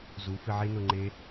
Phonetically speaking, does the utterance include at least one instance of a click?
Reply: yes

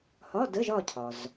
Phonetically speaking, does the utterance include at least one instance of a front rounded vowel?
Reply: no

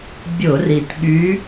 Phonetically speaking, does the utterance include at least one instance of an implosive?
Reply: yes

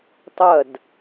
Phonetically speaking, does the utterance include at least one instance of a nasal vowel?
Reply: no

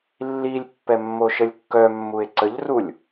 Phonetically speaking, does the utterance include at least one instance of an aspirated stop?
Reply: no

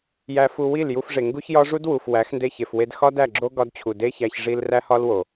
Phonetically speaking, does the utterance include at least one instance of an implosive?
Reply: no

